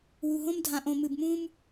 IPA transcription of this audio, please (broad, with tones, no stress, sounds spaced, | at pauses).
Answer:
w u˨ ɦ õ˦ m dʱ ã˨ ʔ õ˨ m ɨ˨ b m ũ˦ m